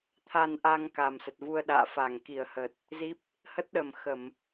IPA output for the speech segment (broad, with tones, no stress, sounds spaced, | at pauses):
t̪ʰ a˧ n ʔ a˧ ŋ k a˨˩ m s ə˨˩ t̚ v u˧ ə̯ ɗ a̰ː˧˨ f a˧˩ ŋ k i˧˩ ə̯ h ə˨˩ t̚ | z i˦˥ p̚ | h ə˦˥ t̚ ɗ ə˨˩ m x ə˧˩˨ m